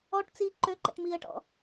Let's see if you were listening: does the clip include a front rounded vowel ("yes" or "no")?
yes